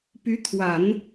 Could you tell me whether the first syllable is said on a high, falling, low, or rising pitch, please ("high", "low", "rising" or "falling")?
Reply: rising